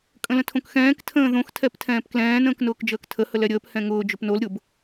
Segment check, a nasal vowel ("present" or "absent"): present